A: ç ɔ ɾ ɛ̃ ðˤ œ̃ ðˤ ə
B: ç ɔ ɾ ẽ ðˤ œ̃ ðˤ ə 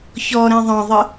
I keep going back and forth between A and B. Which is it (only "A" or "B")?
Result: A